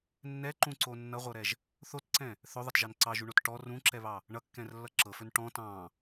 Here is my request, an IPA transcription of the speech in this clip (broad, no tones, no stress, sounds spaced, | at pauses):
nː ɛ ǃ ũ ǀ o nː ʌ ʁʷ ɤ ɾ ɛ ʒ | θ o t ǀ ɛ̃ | θ ɵ ðˤ ʌ t ʒ ɑ n ǀ ɑ ʒ u ɳ o t ʈ ɔ r ũ ǁ ɛ β ɑ | ɳ ʌ kː ɛ̃ r lː ʌ ǁ ɤ f ɵ n ʈ ɔ̃ t ɑ̃